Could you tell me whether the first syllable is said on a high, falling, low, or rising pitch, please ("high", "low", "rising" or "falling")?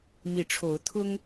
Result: rising